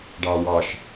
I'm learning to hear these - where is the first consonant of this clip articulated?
retroflex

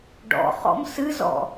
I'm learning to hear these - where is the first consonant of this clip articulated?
retroflex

